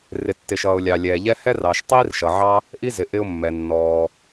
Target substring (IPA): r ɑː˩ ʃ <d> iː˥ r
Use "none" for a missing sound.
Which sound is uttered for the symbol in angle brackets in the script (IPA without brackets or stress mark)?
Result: tˤ